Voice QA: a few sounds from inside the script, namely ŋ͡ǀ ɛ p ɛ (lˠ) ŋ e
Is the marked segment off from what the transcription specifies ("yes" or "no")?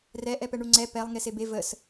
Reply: no